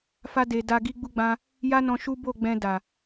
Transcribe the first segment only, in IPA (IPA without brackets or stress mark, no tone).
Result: f